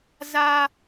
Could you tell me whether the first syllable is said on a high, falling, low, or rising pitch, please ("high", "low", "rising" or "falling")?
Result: high